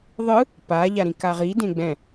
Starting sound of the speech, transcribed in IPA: ðˤ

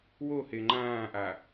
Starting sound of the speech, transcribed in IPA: w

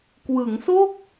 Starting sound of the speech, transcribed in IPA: k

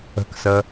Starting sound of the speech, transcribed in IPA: ə̤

